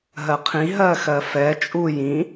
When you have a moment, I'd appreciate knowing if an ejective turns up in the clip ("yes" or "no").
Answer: yes